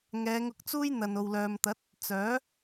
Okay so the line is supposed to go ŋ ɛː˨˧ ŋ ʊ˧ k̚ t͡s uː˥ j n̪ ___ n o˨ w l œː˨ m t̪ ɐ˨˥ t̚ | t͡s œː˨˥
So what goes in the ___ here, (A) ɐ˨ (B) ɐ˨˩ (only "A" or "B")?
A